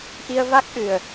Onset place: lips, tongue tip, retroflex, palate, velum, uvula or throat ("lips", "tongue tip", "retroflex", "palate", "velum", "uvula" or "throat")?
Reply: throat